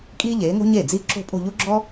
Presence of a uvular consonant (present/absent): absent